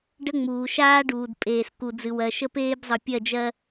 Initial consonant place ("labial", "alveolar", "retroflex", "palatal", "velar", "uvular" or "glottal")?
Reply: retroflex